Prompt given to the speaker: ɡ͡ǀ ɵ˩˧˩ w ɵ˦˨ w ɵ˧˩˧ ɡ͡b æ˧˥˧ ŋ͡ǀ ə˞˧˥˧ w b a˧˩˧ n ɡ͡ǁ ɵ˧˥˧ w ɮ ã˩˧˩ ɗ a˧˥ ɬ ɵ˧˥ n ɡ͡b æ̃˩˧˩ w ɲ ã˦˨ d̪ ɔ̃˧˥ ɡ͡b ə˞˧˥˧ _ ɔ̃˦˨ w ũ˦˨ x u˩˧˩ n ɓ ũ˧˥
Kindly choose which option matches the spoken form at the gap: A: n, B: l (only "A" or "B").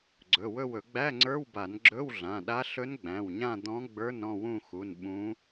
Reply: A